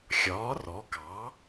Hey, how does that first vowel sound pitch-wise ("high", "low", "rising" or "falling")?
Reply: rising